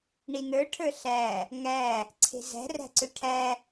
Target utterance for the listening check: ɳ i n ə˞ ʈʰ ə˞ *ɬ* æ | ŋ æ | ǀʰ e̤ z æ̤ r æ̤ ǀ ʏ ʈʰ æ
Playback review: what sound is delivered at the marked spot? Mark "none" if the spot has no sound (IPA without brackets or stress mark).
ɬ